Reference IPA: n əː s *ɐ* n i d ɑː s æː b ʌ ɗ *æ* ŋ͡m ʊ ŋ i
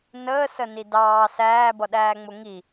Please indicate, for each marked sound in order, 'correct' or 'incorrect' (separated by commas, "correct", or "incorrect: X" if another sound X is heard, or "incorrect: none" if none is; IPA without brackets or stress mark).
incorrect: ə, incorrect: æː